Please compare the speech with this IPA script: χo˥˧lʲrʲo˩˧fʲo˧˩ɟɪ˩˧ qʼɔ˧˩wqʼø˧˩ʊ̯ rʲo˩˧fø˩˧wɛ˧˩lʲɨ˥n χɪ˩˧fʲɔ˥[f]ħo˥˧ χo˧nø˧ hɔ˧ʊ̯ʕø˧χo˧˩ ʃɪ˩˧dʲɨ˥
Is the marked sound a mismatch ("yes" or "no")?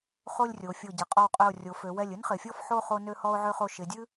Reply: no